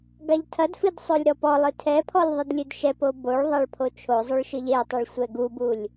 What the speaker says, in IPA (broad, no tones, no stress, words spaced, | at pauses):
ɡaʎtʰɐdfɨd sˤolʲɾɔpɔlˠɨ tʰɛpʰɔlʲ ðˤɨdlʲɨdʃɛpo boɭðˤaɭ pʰot͡ʃʰozˤoɭ ʃɨʎetˤoɭ sʷɛɡubulʲ